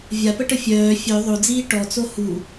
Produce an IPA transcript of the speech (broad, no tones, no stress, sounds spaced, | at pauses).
vʲ a p ə ʈ ə fʲ œː fʲ œ ðˤ o d͡z iː ʈ ɔ t͡s o h u